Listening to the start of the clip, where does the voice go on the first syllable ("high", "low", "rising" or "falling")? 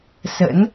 rising